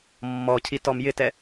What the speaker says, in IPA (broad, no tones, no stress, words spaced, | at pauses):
mːɔcʰi tɔmjɪtɛ